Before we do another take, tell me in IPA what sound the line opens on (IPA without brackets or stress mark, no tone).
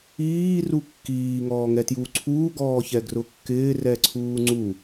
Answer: iː